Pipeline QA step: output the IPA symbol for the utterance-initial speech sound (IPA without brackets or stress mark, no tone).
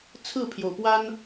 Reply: t͡sʰ